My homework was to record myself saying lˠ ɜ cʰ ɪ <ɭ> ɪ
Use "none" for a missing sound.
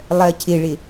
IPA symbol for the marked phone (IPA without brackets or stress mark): ɭ